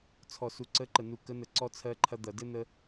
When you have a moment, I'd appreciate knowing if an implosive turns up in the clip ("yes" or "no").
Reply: no